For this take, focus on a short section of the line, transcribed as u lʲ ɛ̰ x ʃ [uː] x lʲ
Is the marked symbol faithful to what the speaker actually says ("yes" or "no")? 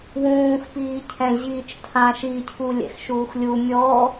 yes